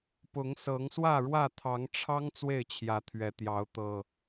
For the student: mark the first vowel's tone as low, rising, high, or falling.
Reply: rising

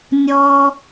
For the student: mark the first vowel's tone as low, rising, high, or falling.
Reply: low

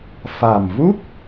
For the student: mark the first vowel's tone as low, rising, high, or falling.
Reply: low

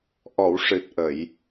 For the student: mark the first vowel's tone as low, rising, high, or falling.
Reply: low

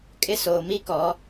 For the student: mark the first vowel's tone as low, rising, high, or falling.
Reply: high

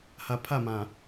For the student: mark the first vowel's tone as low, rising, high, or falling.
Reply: low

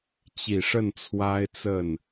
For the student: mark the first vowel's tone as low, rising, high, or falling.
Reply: low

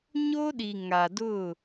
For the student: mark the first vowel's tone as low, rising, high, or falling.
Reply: high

